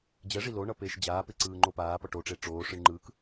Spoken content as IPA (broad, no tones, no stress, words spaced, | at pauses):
d͡ʑɛʐi loɳʌpeːʃ d͡ʑaːpeǀɯːŋ͡ǃo paːpʌ ʈoʈ͡ʂe ʈ͡ʂoːʂɯɳ ŋ͡ǃɯːk